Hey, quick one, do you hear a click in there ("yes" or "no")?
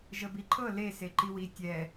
yes